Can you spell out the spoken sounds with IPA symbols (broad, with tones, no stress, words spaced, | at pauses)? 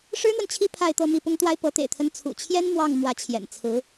ʂɻ̩˥n̪wə˨nt͡ɕʰi˥˧ pʰa˥˧ɪ̯t̪ɤ˥˧ mi˥˩pʊ˥ŋt̪wa˥ɪ̯ pɤ˧˥t̪ḛ˨˩ɪ̯t̪ʰə˧˥n t͡sʰṵ˨˩t͡ɕʰjɛ˥n mwɑ˥˩ŋmwä˧˥t͡ɕʰjɛ̰˨˩nt͡sʰɹ̩˧˥